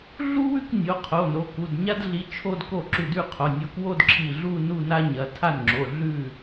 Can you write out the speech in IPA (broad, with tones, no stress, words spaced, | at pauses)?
ɮu˥wʉ˥˧k nʲo˩˧˩qʰo˩˧˩ no˩˧˩ ku˩˧˩dɲa˥dɮi˨˦ t͡ʃʰo˥˧dko˥˩ ǁʉ˧˩dʉ˥˩ qʰo˩˧˩ nʲo˨˦kwo˥˧dǁʰi˧˩ ɮu˥˧ nu˥˧na˥ɲɐ˩˧˩ tʰa˥˩nŋ͡ǁo˩˧˩ ɮʉ˥˩